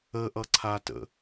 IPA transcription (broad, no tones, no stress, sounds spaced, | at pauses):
ə ʔ ʌ ǀʰ a t ə̰